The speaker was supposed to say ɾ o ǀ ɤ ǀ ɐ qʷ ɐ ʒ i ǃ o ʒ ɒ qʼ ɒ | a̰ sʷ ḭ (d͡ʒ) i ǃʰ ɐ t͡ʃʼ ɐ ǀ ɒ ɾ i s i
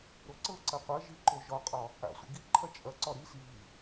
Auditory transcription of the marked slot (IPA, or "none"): ɡ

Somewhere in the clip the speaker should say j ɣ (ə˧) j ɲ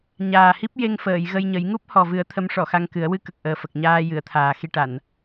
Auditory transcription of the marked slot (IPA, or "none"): ə˧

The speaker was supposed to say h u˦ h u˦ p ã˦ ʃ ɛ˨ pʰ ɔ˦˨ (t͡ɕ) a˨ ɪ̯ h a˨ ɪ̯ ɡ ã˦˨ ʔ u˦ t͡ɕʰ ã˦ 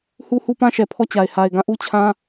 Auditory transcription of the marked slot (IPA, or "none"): t͡ɕ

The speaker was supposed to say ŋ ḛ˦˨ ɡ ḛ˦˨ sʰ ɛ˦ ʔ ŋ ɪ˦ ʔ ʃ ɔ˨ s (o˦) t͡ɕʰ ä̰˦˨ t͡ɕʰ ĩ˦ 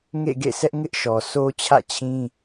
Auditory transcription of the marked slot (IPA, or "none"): o˦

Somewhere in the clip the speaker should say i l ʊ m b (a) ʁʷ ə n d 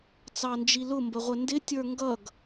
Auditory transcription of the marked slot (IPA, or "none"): ə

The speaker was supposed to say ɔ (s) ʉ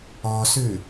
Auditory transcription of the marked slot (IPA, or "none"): s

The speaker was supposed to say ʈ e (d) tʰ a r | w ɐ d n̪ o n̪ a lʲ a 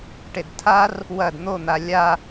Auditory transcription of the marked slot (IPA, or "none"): d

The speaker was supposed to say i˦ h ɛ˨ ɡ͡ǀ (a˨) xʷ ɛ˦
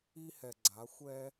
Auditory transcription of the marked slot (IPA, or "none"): a˨˦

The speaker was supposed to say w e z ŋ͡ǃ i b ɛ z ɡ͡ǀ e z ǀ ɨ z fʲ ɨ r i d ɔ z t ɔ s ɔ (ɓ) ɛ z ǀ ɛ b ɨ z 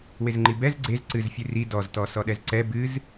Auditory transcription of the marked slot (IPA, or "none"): ɗ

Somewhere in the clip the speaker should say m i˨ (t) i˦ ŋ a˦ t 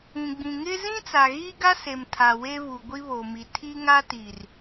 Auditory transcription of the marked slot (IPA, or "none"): tʰ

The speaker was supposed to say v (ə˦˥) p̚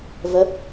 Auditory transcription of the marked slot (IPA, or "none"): ə˦˥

